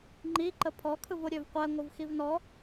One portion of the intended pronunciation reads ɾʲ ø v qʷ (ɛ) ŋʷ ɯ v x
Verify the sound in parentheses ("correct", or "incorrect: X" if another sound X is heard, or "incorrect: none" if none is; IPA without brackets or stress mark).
correct